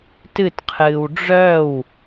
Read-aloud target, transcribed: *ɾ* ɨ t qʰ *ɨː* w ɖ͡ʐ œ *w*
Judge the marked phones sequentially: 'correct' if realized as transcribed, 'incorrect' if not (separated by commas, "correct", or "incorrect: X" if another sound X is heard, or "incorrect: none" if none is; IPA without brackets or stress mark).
incorrect: t, correct, correct